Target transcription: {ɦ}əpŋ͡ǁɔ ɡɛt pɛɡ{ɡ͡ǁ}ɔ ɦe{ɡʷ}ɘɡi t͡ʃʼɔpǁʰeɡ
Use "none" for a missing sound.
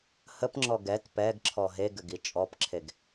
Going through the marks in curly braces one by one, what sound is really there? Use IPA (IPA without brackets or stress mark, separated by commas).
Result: h, ǁʰ, ɡ